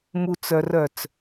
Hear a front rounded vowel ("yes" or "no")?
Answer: yes